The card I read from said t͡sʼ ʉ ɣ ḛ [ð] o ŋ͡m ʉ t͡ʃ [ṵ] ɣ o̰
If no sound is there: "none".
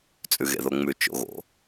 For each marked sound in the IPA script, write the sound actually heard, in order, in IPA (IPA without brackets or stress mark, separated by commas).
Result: ð, o̰